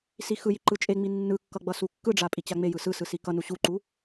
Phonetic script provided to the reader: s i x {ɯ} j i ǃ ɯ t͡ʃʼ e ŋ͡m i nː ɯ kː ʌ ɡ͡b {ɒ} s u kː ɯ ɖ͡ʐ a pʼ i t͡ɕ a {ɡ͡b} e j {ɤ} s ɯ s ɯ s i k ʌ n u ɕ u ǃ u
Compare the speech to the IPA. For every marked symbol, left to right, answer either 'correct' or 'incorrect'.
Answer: correct, incorrect: ʌ, incorrect: ŋ͡m, incorrect: ɯ

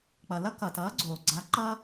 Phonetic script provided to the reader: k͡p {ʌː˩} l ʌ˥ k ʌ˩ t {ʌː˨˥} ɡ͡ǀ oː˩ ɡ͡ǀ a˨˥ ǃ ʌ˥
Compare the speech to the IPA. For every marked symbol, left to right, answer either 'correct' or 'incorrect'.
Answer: incorrect: ʌ˩, correct

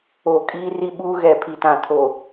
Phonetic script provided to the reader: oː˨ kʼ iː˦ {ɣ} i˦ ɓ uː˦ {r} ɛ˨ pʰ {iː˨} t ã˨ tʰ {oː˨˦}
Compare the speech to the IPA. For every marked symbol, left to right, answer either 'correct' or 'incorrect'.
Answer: incorrect: r, incorrect: ɣ, incorrect: i˨, incorrect: oː˨

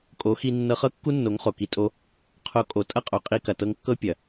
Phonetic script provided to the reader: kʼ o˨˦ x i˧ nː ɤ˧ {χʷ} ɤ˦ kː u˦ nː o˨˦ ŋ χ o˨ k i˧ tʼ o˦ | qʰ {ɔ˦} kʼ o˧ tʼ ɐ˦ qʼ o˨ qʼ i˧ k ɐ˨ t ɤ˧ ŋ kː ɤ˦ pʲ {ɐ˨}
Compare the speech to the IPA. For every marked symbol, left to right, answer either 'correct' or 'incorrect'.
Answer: incorrect: χ, incorrect: o˦, correct

